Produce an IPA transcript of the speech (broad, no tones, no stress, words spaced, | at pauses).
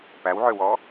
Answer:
pæwʕøwɔ